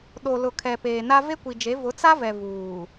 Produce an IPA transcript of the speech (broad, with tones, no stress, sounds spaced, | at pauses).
ɗ o˨ l ʊ˨ kʰ ɛ˨ p eː˨ n a˦ v e˦ kʷ i˨ d͡ʒ e˨˦ v ʊ˨˦ t͡s a˦ v ɛ˨ v uː˨